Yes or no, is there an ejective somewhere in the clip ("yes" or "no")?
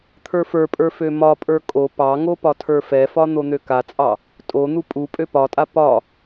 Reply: yes